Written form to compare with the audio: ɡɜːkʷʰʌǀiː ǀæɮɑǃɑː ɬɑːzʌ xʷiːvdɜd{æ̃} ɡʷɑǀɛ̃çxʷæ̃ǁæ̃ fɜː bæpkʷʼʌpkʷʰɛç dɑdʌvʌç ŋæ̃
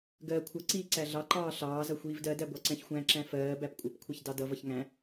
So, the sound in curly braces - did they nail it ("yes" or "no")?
no